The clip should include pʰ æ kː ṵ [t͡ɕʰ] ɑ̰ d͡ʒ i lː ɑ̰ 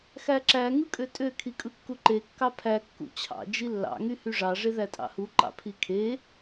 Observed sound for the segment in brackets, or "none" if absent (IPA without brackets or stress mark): t͡ɕʰ